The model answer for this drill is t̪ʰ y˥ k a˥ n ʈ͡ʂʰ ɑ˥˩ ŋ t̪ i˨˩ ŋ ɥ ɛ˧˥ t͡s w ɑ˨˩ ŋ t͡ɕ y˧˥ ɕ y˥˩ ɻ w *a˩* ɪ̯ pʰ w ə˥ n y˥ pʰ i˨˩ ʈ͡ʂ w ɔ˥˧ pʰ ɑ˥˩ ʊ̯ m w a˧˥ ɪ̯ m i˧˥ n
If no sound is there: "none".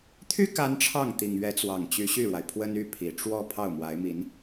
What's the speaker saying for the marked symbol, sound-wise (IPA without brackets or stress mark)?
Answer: a˩